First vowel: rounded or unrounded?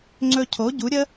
rounded